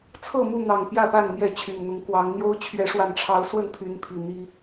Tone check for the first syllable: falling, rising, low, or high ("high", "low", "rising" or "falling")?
falling